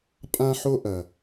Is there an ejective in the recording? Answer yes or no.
yes